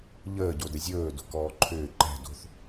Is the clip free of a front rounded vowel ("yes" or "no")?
no